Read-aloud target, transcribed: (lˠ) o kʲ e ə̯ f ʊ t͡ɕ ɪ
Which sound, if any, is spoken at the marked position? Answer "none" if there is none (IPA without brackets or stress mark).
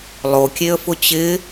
lˠ